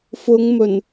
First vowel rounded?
yes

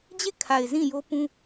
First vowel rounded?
no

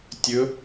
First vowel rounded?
yes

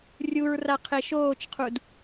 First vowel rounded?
yes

